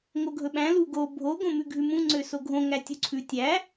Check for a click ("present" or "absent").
present